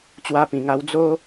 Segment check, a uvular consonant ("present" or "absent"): absent